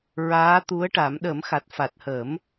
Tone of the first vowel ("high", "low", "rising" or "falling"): rising